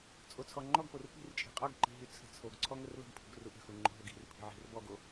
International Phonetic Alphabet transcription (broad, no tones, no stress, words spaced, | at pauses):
t͡sʼot͡sʰɔŋ͡ǃɔɡpor pi̤rt͡ʃʼi̤ qʼɔɡǃi̤ ɦyt͡sʰə̤t͡sʰoɡǀʰɔ ŋərlə̤ɡpʰṳɡ ruʔə̤xu ŋ͡ǃo̤ɦoɡi̤rpʰi̤ ʕi̤rbɔɡo